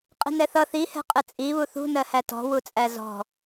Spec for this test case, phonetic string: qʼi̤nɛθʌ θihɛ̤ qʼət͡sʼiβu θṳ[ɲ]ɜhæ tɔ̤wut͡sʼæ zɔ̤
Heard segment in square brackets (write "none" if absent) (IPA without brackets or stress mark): n